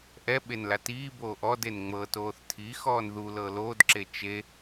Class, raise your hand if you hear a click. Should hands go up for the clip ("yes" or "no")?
yes